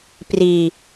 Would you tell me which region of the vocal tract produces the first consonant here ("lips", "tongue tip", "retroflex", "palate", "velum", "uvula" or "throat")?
lips